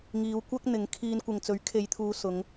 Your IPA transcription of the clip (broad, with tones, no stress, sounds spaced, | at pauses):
ŋ iː˨˧ w kʷ ɐ˥ k̚ n̪ ɪ˨˥ ŋ kʰ iː˧ n kʷ ɪ˨ ŋ t͡s ɵ˨˥ ɥ kʰ e˨ j t̪ʰ uː˨˧ s ʊ˨˧ ŋ